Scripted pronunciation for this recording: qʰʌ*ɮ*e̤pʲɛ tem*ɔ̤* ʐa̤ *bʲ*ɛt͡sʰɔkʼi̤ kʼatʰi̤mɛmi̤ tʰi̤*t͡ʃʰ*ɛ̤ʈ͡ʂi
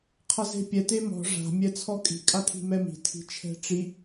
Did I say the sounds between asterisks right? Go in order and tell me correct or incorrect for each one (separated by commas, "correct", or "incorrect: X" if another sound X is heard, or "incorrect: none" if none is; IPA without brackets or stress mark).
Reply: incorrect: z, correct, incorrect: mʲ, correct